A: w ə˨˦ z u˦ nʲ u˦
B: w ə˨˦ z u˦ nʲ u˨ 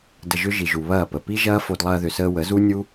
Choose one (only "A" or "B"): A